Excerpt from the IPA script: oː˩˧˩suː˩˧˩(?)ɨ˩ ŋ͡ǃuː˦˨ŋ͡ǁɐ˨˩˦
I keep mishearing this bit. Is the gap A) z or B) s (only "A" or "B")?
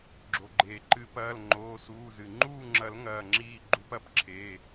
A